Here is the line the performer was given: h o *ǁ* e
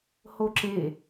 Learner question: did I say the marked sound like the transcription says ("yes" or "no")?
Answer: yes